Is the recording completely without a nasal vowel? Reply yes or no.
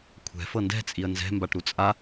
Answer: yes